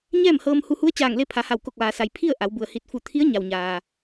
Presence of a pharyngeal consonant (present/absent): absent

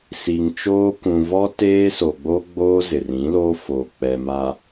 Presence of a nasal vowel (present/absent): present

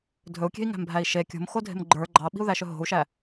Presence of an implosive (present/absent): present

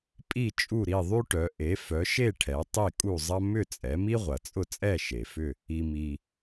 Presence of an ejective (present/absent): present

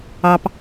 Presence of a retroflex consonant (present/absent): absent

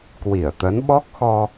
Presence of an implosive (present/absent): present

